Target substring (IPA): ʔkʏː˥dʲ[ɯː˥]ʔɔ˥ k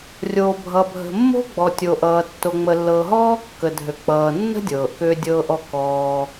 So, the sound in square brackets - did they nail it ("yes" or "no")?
no